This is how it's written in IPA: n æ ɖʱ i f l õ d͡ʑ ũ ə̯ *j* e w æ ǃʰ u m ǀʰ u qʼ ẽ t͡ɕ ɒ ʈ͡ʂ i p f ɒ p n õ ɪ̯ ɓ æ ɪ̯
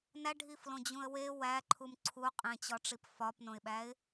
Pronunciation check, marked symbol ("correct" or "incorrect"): incorrect